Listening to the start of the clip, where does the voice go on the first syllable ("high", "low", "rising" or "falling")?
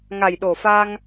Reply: low